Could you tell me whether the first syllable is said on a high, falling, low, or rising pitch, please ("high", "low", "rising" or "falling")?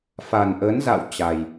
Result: low